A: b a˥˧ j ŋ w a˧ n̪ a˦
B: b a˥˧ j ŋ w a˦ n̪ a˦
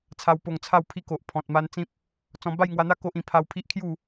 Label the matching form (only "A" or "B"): A